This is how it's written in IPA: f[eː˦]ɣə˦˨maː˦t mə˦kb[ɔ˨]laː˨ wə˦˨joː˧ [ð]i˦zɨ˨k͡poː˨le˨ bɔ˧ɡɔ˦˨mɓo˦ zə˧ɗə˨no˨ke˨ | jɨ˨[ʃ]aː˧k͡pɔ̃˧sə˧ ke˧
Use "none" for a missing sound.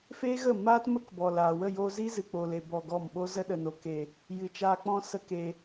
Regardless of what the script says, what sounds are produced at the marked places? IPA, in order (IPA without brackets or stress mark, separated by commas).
eː˦, ɔ˨, z, t͡ʃ